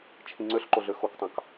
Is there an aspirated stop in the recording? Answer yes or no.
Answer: yes